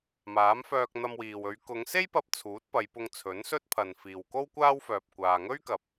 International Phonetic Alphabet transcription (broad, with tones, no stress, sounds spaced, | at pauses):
m aː˨˥ m f œː˧ k̚ n̪ ɐ˧ m w iː˨ w ɵ˨˧ ɥ k ʊ˨˧ ŋ s e˥ j p ɐ˧ p̚ t͡sʰ uː˨˥ t̚ p ɐ˨˧ j p ʊ˧ ŋ t͡sʰ ɵ˨˥ n s ɵ˥ t̚ pʰ ɐ˨ n f iː˨ w k o˥ w kʷ aː˥ w f œː˧ p̚ kʷ aː˧ ŋ ɵ˥ ɥ k ɐ˨˥ p̚